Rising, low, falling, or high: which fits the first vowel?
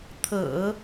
low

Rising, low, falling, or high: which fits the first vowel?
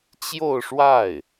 falling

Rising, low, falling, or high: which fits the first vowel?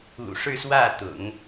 low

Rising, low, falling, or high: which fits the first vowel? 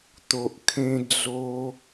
low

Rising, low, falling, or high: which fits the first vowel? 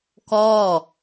falling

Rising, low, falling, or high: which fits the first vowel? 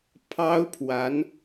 high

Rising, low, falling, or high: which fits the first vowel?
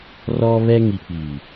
high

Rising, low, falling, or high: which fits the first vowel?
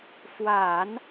low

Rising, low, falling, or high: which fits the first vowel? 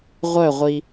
falling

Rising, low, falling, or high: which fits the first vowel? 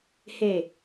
falling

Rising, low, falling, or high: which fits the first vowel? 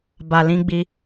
low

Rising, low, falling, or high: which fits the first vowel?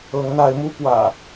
rising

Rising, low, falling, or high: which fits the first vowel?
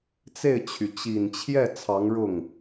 falling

